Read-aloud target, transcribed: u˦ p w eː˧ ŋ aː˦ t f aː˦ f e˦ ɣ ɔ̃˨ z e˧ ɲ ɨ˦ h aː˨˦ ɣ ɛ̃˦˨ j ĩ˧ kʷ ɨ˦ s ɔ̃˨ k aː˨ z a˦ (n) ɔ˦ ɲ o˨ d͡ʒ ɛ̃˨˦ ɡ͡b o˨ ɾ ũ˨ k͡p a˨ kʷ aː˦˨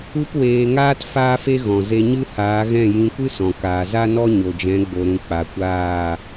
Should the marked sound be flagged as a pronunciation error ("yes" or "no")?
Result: no